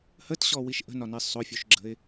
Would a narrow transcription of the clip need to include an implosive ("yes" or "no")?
no